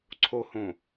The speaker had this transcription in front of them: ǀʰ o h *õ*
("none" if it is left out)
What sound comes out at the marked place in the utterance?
õ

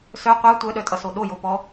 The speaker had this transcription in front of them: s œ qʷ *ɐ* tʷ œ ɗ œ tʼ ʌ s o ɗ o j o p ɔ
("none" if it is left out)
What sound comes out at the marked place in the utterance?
a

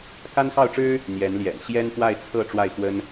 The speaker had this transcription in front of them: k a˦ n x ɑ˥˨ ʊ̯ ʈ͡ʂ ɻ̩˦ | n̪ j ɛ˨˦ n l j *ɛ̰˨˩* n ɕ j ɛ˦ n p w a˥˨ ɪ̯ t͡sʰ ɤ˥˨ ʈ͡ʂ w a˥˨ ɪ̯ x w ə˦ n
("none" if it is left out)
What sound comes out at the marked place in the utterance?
ɛ̰˨˩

